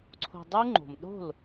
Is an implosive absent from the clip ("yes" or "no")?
no